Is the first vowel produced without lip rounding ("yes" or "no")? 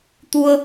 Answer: no